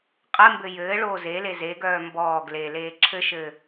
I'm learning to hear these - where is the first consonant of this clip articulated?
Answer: uvula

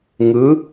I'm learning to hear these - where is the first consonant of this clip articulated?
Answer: velum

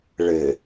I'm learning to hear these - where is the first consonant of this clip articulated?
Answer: retroflex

